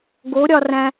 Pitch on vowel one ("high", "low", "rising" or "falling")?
rising